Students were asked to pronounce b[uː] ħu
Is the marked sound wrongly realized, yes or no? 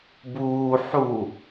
no